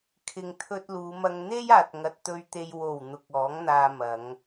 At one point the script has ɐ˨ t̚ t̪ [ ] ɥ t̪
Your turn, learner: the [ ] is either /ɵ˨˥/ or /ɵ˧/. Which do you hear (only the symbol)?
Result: ɵ˧